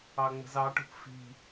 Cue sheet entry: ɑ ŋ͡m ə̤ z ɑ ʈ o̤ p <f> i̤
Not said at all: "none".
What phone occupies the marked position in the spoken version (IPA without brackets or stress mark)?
f